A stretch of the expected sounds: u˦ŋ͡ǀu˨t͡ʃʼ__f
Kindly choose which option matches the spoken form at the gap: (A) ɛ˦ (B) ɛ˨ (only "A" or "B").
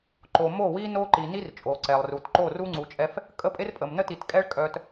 A